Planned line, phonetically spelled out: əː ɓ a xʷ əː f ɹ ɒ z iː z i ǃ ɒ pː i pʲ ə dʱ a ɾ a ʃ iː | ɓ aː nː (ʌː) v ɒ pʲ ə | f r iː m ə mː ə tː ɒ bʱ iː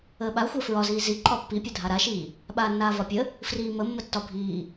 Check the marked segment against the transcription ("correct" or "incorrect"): incorrect